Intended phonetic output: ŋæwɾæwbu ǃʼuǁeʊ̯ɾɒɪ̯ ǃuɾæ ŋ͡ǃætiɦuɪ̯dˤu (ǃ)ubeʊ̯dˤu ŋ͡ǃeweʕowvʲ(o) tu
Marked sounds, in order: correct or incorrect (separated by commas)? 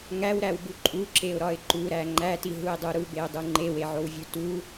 incorrect, incorrect